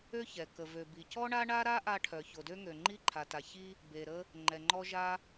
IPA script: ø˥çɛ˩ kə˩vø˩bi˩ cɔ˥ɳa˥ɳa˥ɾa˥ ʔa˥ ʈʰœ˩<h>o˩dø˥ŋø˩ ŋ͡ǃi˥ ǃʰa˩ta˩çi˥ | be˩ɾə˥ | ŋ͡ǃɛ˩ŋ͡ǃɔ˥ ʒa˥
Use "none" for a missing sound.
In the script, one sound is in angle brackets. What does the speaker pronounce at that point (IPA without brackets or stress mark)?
ç